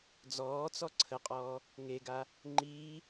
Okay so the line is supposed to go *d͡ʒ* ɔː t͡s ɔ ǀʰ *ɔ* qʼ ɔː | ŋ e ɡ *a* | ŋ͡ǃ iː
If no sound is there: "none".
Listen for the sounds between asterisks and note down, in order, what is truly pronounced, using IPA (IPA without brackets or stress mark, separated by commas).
d͡z, ə, a